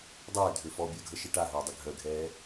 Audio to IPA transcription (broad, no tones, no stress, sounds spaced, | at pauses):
dˤ əː dʱ ø f ɔ bʲ œ ɡʱ ə ʃ ɪ ʈ a ɦ əː dˤ ɪ ɡʱ œ ɡʱ ɛː